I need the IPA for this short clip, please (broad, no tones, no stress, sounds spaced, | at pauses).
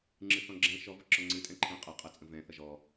ŋ͡ǁ ɨ θ ɔ̃ ɡ͡ǁ ɛ̃ ʃ ɔ v ə ǁ ɔ ŋ͡ǀ ɨ tʼ ɛ̃ ǃʰ ɛ̃ qʼ ʌ qʼ ʌ t͡sʼ ə̃ v ɛ̃ θ ʌ ʒ ɔ